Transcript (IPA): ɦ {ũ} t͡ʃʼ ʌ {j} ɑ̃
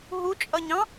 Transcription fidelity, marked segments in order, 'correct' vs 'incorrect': incorrect: u, incorrect: ɲ

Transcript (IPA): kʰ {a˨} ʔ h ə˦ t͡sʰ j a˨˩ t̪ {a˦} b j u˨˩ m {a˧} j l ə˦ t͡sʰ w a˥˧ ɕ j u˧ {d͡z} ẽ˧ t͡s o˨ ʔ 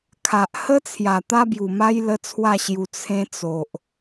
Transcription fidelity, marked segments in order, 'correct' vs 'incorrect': correct, correct, incorrect: a˦, incorrect: t͡sʰ

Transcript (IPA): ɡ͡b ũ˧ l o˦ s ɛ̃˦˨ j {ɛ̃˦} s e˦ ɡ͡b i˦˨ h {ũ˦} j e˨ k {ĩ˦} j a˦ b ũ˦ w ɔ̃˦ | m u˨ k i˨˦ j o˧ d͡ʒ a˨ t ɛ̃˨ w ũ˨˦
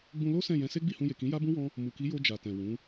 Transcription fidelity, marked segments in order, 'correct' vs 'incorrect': incorrect: ɛ̃˧, incorrect: ũ˧, incorrect: ĩ˨˦

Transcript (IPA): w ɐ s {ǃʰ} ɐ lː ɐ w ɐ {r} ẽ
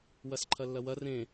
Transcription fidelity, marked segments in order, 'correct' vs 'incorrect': correct, correct

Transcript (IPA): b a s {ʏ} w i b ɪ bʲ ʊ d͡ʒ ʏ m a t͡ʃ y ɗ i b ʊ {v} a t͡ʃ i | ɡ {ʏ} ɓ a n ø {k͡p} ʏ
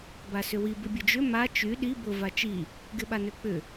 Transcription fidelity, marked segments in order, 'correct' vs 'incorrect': correct, correct, incorrect: ɪ, correct

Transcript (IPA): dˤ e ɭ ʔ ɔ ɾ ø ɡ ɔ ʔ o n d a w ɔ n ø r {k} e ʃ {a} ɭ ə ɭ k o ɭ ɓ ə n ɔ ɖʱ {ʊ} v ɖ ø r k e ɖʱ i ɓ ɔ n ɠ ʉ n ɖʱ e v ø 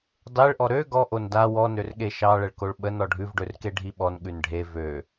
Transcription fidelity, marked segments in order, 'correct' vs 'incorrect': incorrect: ɠ, incorrect: ɑ, incorrect: ʉ

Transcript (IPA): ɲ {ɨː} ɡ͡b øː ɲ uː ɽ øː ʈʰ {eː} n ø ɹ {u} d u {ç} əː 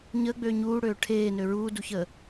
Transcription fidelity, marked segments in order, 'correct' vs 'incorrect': incorrect: əː, correct, incorrect: uː, correct

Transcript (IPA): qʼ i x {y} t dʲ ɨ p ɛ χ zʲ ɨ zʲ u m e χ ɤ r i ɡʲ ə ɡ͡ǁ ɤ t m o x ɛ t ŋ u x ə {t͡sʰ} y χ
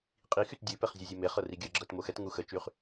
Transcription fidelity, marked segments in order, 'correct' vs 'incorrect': correct, incorrect: t͡ʃ

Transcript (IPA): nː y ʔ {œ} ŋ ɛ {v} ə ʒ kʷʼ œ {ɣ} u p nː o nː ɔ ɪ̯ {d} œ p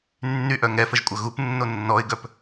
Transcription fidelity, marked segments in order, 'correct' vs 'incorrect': correct, incorrect: f, correct, incorrect: ɡ

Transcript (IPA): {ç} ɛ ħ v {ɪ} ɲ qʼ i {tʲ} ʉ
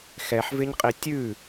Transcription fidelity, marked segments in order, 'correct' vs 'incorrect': incorrect: x, correct, correct

